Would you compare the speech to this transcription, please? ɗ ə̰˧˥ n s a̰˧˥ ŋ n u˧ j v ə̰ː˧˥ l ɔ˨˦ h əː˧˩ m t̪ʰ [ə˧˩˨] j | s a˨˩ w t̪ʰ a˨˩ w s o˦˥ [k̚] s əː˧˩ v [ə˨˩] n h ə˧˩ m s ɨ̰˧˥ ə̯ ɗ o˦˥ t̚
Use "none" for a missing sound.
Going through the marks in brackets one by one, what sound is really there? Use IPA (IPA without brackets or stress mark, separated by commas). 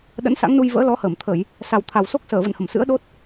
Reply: ə˧˩˨, k̚, ə̰˧˨